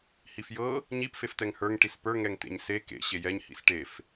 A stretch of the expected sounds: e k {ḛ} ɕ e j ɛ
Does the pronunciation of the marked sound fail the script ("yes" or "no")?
no